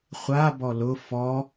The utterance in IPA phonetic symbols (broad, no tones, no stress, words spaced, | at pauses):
χʷa bɔlʊ fɔ